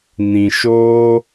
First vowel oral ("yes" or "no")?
no